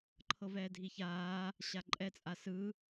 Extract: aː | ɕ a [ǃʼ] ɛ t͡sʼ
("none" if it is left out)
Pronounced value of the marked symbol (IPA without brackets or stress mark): ǃʼ